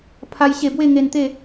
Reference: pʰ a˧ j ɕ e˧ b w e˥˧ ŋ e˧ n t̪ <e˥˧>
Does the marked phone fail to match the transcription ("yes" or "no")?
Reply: no